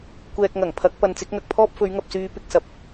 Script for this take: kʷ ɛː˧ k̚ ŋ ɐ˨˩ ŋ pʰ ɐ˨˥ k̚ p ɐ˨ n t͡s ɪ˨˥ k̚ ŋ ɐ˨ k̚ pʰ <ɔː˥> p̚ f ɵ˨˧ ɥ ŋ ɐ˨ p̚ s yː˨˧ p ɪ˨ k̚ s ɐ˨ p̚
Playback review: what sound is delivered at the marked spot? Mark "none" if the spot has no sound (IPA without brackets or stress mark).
ɔː˥